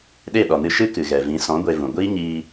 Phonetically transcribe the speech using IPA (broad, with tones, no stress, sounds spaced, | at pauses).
ɗ e˦˨ ɗ ɔ˨ n ɨ˧ ʃ ɨ˦ k ɨ˨ ɣ ɛ˨ v ĩ˨˦ s ɔ̃˨˦ ɡʷ e˧ v ũ˨ ɡʷ iː˦ ɲ iː˧